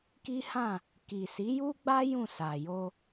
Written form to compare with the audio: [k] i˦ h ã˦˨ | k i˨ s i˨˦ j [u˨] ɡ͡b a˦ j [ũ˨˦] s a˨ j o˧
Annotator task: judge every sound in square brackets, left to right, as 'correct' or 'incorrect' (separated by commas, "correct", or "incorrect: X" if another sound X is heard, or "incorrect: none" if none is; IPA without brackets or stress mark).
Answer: correct, incorrect: u˦, incorrect: ũ˦˨